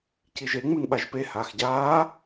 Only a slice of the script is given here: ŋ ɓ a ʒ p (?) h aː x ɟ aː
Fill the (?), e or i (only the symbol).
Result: e